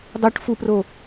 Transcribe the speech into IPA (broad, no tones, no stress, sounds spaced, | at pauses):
dˤ o ʈ f u p r o